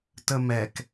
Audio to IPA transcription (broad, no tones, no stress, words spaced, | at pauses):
təmɛk